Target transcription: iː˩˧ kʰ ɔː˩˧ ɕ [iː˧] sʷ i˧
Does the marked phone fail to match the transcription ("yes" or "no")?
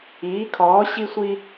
yes